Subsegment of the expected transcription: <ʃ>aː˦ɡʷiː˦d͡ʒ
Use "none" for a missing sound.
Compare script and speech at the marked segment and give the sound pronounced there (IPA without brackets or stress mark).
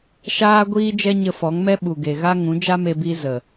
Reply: ʃ